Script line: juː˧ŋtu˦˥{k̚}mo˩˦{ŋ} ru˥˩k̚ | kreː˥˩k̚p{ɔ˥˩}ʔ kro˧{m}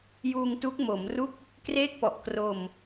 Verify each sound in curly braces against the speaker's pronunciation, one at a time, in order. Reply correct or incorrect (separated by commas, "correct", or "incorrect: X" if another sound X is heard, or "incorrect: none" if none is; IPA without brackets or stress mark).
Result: correct, incorrect: m, incorrect: ɔ˨˩, correct